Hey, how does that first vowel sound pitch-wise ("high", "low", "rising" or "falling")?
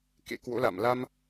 rising